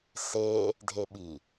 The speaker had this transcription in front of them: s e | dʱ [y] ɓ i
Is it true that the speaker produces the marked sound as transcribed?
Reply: no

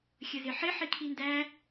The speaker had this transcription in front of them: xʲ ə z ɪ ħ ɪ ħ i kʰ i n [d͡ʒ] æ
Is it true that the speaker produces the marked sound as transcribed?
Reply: no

